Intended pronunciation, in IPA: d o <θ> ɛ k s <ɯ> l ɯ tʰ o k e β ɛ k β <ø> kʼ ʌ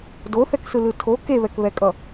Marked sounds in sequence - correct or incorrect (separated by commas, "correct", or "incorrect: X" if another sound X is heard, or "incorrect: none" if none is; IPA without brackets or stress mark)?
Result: correct, correct, incorrect: ɛ